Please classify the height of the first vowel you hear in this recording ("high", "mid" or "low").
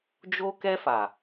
mid